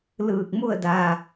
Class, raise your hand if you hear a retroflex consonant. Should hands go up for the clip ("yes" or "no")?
no